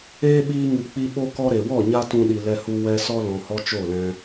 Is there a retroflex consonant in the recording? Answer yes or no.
no